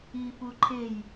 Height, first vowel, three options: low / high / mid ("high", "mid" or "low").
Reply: high